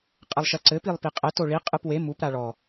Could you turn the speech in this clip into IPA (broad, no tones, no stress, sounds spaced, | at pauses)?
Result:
qʼ ɘ lˠ ʃ ɐ ǀ ɘ p i lˠ p i qʼ ɛ t o ɭ i qʼ ɨ p w e m u p ɾ a ɭ ɔ